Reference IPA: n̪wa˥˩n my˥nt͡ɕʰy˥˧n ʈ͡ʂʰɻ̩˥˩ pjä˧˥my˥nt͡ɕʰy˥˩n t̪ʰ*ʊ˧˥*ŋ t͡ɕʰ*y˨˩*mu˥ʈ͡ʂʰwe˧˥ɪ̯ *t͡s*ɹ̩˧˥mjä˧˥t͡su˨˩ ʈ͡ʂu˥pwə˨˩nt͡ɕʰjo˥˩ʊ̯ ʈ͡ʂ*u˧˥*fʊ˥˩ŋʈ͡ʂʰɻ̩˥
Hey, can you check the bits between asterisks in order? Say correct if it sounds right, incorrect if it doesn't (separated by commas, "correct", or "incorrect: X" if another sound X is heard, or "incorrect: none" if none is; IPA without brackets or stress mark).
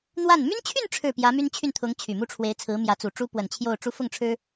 correct, correct, incorrect: t͡sʰ, correct